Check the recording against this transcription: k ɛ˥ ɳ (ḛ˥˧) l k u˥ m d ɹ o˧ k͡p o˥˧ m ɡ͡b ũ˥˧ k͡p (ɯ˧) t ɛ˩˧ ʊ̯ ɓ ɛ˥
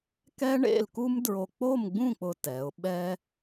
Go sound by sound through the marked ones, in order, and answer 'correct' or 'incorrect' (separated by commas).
correct, incorrect